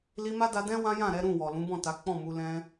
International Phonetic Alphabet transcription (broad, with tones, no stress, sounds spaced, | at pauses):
l i˧ m a˦ d a˧ d ɛ̃˦ w ã˦ j ã˦˨ ɾ ɛ˨˦ ɾ ũ˦˨ w ɔ˨ l ũ˨˦ b ɔ̃˦˨ t a˨˦ k͡p ɔ̃˦˨ m u˧ l ɛ̃˦